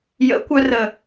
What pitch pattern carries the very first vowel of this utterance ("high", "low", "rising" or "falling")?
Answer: rising